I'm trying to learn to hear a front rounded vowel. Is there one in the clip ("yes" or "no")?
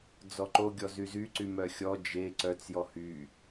yes